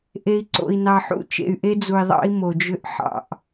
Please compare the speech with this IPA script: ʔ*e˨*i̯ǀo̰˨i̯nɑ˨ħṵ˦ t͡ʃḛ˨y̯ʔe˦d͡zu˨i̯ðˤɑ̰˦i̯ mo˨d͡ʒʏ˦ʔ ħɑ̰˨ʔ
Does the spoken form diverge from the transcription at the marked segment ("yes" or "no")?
no